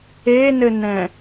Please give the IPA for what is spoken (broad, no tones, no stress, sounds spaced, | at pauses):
e n ɘ n ɛ̃